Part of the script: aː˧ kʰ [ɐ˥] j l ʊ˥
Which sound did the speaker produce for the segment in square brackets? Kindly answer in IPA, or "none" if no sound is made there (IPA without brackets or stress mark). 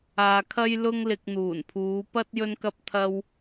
ɐ˥